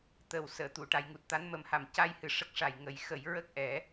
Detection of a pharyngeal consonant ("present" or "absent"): absent